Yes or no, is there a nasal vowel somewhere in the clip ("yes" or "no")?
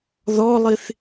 no